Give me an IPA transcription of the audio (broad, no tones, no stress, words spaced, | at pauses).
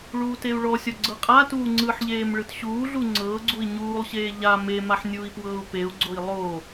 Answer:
ɭuːteu̯ɭɔsʲɔ ɡ͡ǀɤqʼatuː ŋ͡ǀɯħʎeːm ɭɯtɕuːɮu ŋ͡ǀɤːɡ͡ǀui̯ ɲuːlˠɕeː ʎa memaħ nʲuːi̯pwɤːu̯peu̯ɡ͡ǀoi̯ lˠo